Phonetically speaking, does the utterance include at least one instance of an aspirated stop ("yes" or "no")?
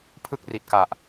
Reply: yes